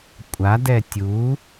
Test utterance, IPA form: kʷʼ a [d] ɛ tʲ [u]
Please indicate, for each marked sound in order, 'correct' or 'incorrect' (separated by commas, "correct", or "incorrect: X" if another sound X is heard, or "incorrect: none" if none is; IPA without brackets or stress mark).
correct, correct